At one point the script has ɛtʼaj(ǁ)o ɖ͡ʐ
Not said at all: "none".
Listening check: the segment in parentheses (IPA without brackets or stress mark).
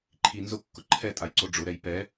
ǀ